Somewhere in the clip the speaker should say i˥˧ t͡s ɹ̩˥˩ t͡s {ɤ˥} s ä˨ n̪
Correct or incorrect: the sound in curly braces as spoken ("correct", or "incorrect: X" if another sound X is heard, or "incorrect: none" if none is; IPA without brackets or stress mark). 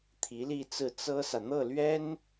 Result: correct